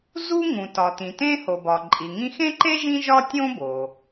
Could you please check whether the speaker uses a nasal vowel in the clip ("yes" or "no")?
yes